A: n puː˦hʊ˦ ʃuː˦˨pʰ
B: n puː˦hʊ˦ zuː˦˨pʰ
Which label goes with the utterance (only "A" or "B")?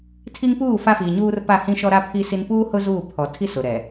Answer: B